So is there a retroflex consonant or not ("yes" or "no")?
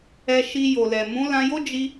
no